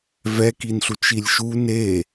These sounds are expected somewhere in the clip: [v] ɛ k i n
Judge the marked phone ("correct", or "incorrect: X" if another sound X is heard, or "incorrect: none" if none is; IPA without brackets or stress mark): correct